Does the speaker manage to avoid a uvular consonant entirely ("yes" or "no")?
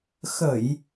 yes